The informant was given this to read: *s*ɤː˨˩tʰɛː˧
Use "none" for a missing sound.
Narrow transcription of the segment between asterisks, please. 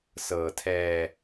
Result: s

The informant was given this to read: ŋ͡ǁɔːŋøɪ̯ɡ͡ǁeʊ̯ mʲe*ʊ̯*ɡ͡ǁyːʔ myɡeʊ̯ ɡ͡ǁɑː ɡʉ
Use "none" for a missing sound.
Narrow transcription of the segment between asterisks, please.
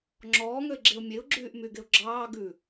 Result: ʊ̯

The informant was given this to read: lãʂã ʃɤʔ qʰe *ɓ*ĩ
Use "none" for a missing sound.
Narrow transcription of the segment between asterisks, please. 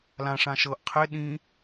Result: ɗ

